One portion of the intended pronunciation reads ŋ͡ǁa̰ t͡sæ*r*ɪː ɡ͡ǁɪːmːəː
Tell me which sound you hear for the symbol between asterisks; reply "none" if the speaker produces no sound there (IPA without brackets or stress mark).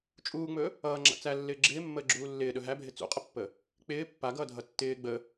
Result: lː